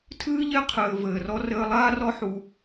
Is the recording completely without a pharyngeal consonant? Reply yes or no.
no